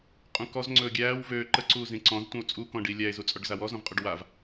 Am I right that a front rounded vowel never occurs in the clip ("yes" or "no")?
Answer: no